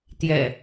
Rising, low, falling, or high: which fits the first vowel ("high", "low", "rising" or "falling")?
low